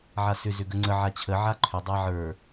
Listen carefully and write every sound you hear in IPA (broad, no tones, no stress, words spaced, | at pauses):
ʕasʏ zʏɡəŋ͡ǀə ʕat͡ɕʰə ʕaǃʰʏ dˤaʕə˞